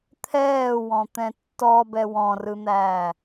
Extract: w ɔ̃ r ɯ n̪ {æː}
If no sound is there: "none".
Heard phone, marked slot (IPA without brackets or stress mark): æː